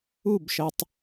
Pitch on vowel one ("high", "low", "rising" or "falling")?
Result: falling